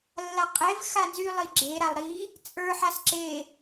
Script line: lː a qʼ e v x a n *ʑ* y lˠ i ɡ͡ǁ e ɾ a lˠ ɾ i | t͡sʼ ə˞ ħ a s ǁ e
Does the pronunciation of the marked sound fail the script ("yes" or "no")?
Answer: yes